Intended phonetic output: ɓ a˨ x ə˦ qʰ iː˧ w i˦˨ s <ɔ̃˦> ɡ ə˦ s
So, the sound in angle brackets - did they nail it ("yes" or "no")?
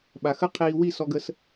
no